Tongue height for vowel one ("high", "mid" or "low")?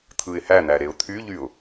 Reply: high